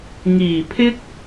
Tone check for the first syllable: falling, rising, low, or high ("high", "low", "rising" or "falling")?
low